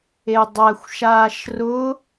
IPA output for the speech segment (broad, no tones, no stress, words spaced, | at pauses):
edˤæxʷʃaːʃ rʊ